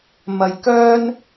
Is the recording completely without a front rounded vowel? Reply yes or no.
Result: no